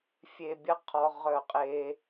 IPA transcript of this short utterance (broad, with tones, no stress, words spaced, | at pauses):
fʲe˧bʲɐ˦qʰɔ˧ ʁœ˦˨qʼe˦